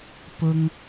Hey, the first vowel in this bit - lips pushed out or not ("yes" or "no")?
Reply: yes